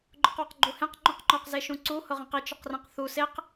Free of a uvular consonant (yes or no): no